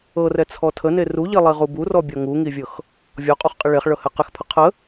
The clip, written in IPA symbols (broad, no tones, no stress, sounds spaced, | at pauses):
ɤ r ɛ t͡sʰ ɔ tʰ ə n e r u ʎ i lˠ i ʁ u b u r ɔ bʲ ɔ ŋ u ŋ i vʲ ɤ x | vʲ ɔ qʼ u χ qʼ ɪ ɭ e χ ɭ ɤ h ɛ q ɪ x pʰ ə qʰ ə